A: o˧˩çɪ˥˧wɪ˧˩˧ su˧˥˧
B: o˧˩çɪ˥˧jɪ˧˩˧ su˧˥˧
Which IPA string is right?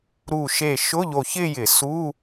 B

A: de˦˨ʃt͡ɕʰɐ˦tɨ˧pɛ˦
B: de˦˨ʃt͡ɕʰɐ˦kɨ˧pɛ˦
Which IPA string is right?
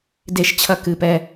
B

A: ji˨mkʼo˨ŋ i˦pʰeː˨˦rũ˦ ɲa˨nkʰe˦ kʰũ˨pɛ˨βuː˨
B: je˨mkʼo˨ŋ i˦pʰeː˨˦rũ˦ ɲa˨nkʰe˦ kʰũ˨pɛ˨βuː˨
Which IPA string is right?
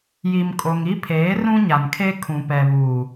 A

